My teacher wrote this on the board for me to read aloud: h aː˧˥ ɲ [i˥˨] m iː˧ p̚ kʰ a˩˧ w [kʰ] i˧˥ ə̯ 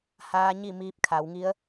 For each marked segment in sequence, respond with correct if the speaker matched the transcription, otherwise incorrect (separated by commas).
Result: correct, incorrect